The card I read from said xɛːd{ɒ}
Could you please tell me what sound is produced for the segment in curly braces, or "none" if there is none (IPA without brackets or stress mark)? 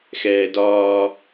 ɒː